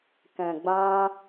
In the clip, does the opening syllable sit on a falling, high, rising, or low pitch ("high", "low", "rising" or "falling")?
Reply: low